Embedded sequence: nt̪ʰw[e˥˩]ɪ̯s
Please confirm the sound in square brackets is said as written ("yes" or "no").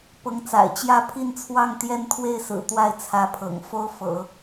yes